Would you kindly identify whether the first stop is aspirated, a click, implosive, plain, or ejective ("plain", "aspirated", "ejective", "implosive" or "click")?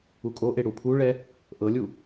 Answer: ejective